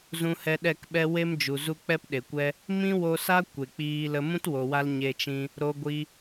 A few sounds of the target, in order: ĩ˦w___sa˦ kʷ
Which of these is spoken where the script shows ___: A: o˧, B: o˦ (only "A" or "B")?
A